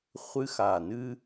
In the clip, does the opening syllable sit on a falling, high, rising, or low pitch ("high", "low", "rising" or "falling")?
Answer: high